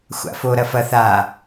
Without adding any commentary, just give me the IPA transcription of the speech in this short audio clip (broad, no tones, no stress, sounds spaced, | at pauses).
xʷ a̰ f o ɾ ɐ f ɐ θ a